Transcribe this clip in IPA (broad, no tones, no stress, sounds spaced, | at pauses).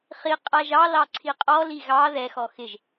χ i qʼ a ʒ ɑ l ɑ ǀʰ i qʼ ɔ l i ɣ ɑ ð ɛ x ɔ x ɪ ʒ